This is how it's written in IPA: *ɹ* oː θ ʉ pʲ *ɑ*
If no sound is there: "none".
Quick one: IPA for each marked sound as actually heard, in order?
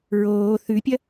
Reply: ɹ, ɐ

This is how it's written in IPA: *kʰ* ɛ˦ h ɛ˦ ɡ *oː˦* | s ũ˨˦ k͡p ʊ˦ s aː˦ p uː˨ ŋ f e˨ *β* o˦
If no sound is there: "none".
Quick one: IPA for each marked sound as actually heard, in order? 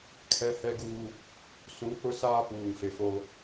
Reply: kʰ, uː˦, f

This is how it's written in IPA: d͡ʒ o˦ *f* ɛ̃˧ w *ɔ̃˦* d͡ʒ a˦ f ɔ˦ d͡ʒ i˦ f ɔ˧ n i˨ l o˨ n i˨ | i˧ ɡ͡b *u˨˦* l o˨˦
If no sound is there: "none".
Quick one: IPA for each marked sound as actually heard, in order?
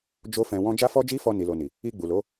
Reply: f, ɔ̃˦, u˨

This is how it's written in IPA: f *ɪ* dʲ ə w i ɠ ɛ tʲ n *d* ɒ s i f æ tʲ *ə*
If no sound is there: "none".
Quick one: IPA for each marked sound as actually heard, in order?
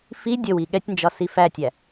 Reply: i, d͡ʒ, æ

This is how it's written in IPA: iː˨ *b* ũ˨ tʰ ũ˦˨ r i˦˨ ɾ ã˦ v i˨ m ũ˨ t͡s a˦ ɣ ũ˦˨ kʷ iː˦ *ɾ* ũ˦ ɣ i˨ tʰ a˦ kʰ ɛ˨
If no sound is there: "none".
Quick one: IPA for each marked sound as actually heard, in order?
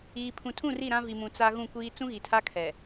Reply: pʰ, t͡s

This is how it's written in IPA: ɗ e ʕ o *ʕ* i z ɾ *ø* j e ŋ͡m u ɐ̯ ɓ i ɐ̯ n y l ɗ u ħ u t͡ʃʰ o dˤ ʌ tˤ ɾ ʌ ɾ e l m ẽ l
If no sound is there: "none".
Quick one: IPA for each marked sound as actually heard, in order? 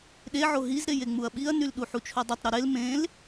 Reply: ɦ, e

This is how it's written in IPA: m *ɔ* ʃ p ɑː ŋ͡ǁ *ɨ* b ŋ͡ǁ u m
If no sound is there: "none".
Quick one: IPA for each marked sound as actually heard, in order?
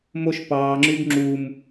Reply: o, y

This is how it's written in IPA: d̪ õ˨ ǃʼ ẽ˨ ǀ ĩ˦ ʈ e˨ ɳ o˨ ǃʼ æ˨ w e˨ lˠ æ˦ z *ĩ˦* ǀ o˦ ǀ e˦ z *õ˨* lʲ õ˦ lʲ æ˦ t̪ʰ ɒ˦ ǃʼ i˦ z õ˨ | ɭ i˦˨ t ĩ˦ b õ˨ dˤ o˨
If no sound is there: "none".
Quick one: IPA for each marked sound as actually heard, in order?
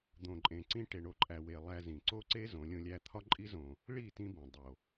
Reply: ĩ˨, õ˨˦

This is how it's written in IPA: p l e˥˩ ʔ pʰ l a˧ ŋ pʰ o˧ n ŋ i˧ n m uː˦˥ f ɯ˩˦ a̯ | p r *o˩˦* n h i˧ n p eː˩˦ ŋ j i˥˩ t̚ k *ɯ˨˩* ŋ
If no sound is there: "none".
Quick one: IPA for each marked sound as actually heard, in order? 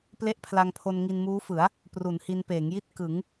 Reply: u˩˦, ɯ˩˦

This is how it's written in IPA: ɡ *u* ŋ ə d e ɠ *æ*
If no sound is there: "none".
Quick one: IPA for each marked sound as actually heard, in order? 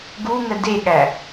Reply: u, æ

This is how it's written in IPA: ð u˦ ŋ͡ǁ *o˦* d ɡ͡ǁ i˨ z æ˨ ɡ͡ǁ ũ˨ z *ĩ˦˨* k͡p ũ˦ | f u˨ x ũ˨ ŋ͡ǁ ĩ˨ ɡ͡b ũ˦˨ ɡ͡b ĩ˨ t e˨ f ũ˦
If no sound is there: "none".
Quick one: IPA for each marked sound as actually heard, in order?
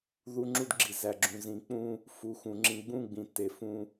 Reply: u˦, ĩ˨

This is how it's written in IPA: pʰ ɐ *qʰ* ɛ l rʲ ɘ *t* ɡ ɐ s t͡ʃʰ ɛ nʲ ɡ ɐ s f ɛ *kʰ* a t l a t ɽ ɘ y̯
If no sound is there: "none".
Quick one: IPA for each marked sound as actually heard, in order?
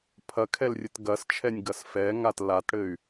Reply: kʰ, t, ŋ

